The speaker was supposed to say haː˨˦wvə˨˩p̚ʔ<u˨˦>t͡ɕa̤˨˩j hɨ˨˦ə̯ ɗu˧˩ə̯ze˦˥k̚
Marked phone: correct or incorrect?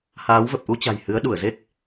incorrect